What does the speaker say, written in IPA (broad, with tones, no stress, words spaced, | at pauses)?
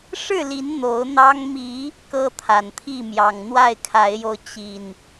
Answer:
ʂɻ̩˥˨li˨˦n n̪o˨˦ʊ̯n̪ɑ˦ŋ mi˨˦ | kɤ˦t̪ʰa˨˩nt̪ʰi˥˨ mjɑ˨˩ŋn̪wa˥˨ɪ̯kʰa˨˦ɪ̯jo˧ʊ̯ t͡ɕi˨˩n